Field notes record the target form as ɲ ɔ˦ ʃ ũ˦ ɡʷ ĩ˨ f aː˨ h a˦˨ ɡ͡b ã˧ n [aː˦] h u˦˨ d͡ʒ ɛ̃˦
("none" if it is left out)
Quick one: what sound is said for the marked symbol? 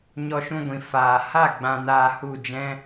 aː˧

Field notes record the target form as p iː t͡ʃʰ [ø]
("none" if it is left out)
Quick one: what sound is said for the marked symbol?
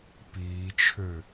ø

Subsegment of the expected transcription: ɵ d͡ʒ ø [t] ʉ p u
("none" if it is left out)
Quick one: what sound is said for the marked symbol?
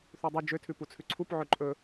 tʰ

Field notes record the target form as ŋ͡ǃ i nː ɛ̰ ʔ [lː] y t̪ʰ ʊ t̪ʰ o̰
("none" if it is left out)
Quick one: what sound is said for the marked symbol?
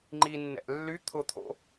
lː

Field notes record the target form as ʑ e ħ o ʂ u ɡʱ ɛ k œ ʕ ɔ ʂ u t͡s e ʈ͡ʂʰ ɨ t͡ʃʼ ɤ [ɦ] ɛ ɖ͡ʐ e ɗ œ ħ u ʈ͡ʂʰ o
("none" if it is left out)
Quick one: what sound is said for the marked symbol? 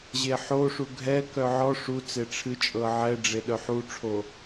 ʕ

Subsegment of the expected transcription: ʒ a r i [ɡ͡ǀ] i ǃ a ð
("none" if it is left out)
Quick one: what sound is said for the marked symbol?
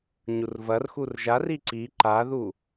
ǀ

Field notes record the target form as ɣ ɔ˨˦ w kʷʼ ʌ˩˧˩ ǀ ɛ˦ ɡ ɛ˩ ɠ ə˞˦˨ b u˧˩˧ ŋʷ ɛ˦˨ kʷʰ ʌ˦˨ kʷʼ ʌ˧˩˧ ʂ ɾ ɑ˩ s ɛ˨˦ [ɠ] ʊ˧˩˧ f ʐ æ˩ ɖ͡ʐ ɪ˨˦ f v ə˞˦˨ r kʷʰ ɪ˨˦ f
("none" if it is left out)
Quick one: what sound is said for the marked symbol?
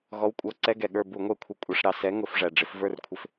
ŋ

